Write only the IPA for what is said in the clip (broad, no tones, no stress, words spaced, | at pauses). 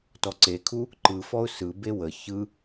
tɔǀekʰu | ǃɯ fɔʊ̯sɯ bewə çɯ